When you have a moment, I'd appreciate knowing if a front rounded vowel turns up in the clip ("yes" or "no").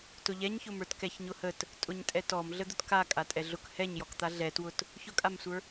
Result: no